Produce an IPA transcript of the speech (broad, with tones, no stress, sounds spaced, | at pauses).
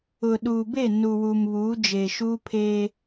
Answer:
ʊ˨ ɗ uː˨ b e˦˨ n u˨ w u˨ m β uː˨˦ d͡ʒ eː˨ ʃ uː˦ pʰ e˦